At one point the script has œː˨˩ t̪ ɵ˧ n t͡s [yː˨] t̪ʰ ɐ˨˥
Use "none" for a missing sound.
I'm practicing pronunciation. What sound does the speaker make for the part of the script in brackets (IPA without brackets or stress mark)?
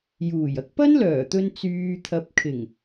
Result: yː˨